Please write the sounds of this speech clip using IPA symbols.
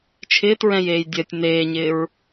t͡ʃʰɪːtɹɛ̃jeːj dʲɜtʲ neːɲɪːɹ

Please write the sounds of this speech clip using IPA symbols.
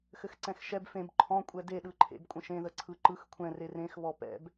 xɘxǀɛ̃xʃɛb fẽb ǃʰɔ̃ kʷʼɛdeɗɯǃʰḛb kʷʼə̃ʃẽðə ǀʰɯǃɯx kʷʰɛ̃ rerẽxβɔ pɛ̰b

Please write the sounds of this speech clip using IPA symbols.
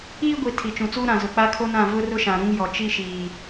iː˦ɡʷi˨ tʰi˨t͡ʃũ˨t͡suː˦ ɾã˨ zʊ˨k͡pa˦kʰo˦nã˦˨ vʊ˦rʊ˦ʃã˨ ɾũ˦ŋjɔ˨ t͡ʃi˦ʃiː˨

